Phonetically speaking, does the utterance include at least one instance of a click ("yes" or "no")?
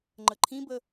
yes